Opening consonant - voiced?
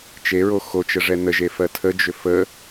no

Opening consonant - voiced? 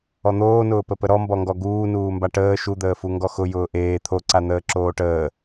yes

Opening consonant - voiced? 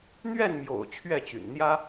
yes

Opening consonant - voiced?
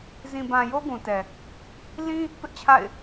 yes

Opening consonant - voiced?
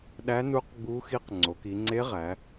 yes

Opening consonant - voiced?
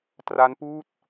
no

